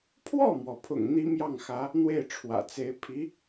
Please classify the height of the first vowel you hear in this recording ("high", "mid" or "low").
mid